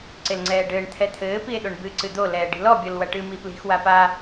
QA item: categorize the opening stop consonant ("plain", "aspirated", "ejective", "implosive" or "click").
click